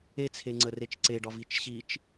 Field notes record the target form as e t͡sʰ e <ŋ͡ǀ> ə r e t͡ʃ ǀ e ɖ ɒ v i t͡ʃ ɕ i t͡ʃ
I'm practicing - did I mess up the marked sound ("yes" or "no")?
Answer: no